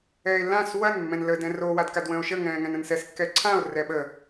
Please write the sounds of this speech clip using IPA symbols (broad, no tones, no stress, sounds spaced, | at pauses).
ɛː e̯ lː ã s w ɐ n mː ɛ̃ n l ə d ɛ̃ r o w a d k a d w ə̃ː o̯ ʃ ə ŋ ɛ̃ː ŋ ɛ̃ n ə̃ n s ɛ s kː ɛ ǀʰ ã o̯ r ɛ ɓ ə